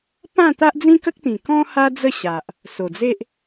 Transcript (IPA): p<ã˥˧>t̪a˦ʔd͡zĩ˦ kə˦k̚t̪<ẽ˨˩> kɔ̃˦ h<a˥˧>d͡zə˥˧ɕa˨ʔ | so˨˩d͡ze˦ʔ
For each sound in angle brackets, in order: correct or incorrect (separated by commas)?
correct, incorrect, incorrect